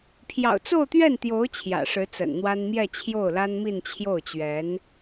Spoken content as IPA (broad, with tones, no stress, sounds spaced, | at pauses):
pʰ j ɑ̰˨˩ ʊ̯ t͡s o˥˧ ʊ̯ t̪ ɥ ɛ˥˩ n t̪ j o˧˥ ʊ̯ t͡ɕʰ j ä̰˨˩ ʂ ɻ̩˧˥ t͡s ə̰˨˩ n n̪ w a˥ n m j ɛ˥˧ t͡ɕʰ j o˥˩ ʊ̯ l a˥ n m i˥˧ n t͡ɕʰ j o˥˩ ʊ̯ t͡ɕ ɥ ɛ˧˥ n